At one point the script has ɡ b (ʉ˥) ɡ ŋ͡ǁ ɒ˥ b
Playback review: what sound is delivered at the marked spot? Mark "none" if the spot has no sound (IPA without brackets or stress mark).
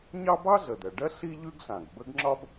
ə˥